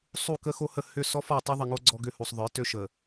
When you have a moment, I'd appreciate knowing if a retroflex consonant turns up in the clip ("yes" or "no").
no